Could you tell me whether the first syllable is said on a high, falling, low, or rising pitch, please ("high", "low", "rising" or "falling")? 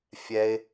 high